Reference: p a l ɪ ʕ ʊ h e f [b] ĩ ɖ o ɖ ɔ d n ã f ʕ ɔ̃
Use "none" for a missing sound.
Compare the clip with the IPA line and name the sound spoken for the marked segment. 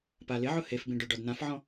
b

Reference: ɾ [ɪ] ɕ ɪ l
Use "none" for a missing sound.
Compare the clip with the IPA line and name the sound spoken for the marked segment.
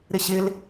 ɪ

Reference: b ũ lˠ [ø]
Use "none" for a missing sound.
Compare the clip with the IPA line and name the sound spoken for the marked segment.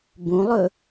ɵ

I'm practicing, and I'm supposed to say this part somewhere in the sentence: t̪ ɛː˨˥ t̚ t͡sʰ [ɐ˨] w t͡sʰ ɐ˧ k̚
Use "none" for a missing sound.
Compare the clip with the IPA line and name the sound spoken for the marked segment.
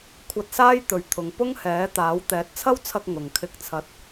ɐ˥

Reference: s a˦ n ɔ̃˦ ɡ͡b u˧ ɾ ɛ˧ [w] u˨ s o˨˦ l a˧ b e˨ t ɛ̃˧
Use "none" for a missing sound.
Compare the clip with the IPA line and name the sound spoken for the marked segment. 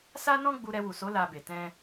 w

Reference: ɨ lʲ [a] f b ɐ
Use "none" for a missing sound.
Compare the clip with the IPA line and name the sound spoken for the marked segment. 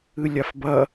a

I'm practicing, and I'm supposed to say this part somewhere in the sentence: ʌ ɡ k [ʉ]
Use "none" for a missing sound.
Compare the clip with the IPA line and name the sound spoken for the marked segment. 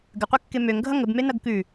ʉ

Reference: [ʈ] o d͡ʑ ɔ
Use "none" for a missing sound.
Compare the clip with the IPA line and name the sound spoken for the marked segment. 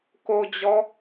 k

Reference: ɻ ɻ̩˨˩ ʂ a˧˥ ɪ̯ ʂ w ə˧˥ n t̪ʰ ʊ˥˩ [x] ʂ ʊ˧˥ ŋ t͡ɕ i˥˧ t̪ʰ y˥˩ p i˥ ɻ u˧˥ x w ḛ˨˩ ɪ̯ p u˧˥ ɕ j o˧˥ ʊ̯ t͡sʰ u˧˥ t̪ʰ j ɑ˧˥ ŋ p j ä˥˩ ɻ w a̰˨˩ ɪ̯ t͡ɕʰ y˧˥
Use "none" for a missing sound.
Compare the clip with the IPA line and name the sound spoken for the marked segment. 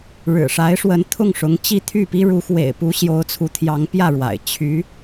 ŋ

